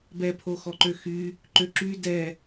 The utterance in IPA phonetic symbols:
bɛpʰoxɔǃø xy | ǃøǁy dɛ

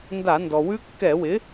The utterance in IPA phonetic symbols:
nda˧˩˧ndɔ˩wʉ˦˥ kːɛ˧˩˧wɪ˩˥

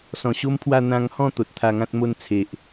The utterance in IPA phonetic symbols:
sɔ̃˨˩ɕo˦mpʰwa˥˧ n̪ã˧ŋhɔ̃˥˧ t̪o˨t̚t̪ʰa˧ŋã˦t̚mo˥˧n t͡sʰe˨ʔ

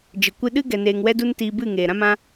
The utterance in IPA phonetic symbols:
d͡ʒə˨kʷɨ˧ɗɨ˦ ɡɛ˧neː˧ŋwɛ˦du˦n tiː˧bɨ˦˨ ŋeː˨ɾã˦mã˦

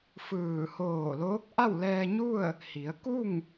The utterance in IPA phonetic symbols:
fɯː˧˩ hoː˧˩loː˧˥k̚ ʔa˥˨wlɛː˧ɲu˥˨ə̯ | hi˩˧ə̯ ku˥˨ŋ

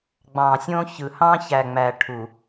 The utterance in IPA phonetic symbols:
ɡ͡bɑ̃˨sʲõ˦çɯ˨ hɑ̃˦çæ˨ŋ͡mæ˨ ʈʰu˨

